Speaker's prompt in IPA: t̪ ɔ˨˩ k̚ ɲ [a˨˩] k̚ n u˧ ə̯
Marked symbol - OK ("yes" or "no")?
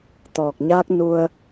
no